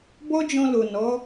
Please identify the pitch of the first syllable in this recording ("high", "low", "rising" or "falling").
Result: high